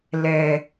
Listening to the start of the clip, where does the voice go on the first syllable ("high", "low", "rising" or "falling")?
low